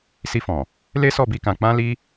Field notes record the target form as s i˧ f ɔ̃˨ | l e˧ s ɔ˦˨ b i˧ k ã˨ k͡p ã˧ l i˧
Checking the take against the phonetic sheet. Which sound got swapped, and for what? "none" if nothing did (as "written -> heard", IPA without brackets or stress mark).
e˧ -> e˦